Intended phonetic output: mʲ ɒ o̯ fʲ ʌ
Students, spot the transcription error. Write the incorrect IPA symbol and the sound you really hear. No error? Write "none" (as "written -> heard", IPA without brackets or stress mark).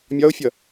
none